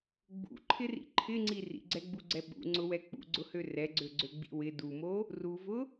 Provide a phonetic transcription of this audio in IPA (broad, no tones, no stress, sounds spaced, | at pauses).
ɡ͡b ṵ ǃʰ ɪ r ḭ ǃʰ ɪ ŋ͡ǀ i r ḭ ɡ͡ǀ ɛ ɡ͡b u ɡ͡ǀ ɛ ɓ ṵ ŋ͡ǀ ʊ w ɛ k͡p ṵ ɡ͡ǀ ʊ h ø r ɛ ɡ͡ǀ ø ɡ͡ǀ ø ɡ͡b ḭ w ɪ d u m o | r u v ʊ